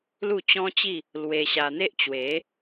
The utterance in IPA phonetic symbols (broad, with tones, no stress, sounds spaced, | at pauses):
l u˥˧ t͡ɕ ɔ̃˦ t͡ɕ i˥˧ | l w e˧ ɕ a˧ n̪ e˦ ʔ t͡ɕ w e˨˦